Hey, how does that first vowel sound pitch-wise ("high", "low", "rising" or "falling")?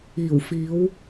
low